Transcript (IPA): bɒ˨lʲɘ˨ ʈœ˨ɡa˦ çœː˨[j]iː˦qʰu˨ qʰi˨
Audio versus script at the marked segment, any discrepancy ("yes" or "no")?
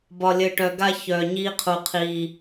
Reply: yes